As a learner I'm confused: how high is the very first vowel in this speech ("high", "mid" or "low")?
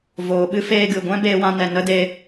mid